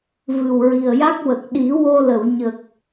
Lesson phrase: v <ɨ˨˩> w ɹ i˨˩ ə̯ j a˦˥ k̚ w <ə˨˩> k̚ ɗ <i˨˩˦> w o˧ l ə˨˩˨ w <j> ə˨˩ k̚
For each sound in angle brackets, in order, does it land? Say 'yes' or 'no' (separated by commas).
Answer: yes, yes, yes, no